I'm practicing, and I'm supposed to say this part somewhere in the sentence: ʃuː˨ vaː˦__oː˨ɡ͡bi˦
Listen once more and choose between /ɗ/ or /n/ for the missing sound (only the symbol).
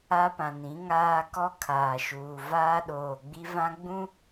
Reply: ɗ